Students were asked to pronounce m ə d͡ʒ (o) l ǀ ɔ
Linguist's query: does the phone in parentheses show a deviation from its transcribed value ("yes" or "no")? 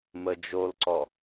no